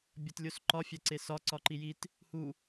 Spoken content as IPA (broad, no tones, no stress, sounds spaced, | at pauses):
bʲ ɒ t lʲ o s ǃ ɒ fʲ æ ǀ e s ɒ ǀ ɒ ǃ i j i t | h u